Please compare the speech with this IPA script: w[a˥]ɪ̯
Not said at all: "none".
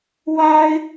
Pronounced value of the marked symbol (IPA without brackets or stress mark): a˥